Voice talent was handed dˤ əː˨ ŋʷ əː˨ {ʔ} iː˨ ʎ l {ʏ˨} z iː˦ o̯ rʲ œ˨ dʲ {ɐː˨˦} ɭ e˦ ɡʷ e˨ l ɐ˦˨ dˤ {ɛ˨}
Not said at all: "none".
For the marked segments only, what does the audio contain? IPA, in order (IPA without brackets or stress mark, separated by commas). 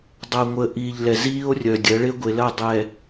ʔ, ɛ˨, ɐː˨˦, ɛ˨